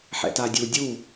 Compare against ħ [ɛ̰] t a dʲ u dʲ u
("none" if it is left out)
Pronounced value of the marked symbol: ɛ̰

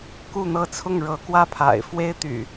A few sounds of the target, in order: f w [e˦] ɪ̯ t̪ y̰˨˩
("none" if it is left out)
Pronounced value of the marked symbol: e˦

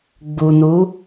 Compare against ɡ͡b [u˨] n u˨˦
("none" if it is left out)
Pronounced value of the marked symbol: u˨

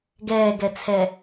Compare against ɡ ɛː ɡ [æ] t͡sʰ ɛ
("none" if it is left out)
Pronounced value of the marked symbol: ɛ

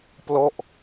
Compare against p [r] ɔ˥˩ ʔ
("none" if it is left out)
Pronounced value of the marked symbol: l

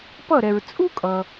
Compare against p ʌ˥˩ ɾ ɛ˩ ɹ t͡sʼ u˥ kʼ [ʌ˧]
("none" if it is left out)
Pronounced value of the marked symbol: ʌ˩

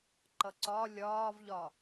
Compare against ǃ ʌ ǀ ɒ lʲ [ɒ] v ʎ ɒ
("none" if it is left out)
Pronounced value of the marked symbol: ɒː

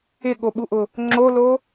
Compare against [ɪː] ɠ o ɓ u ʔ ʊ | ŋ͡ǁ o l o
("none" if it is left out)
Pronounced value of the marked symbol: ɪ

